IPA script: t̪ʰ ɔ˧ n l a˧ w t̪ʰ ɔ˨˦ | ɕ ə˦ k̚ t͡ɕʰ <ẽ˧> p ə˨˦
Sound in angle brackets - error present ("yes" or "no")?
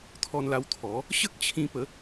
yes